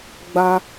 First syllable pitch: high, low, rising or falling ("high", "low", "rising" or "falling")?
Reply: high